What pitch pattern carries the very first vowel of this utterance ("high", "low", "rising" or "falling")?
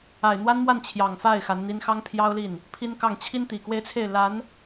low